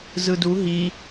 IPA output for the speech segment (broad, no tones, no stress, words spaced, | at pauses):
zɯdu ɦi